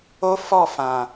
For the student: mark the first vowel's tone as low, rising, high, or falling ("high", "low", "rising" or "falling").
high